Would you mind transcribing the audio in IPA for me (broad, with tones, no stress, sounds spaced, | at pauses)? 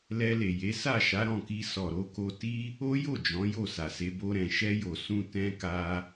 l ɛ˧ l e˨ j e˨˦ s a˦˨ ʃ a˨˦ ɾ ɔ̃˦˨ k i˧ s ɔ˨ ɾ o˧ k o˧ t i˦ | o˦ j o˦˨ d͡ʒ ɔ̃˨˦ j o˦˨ s a˨ s e˧ b o˧ ɾ ɛ̃˨ ʃ ɛ˧ j o˨ s ũ˧ t ɛ̃˧ k a˧